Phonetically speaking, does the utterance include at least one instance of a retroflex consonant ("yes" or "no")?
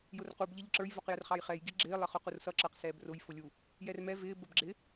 no